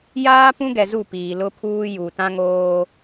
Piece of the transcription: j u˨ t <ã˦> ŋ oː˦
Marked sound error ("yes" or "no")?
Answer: no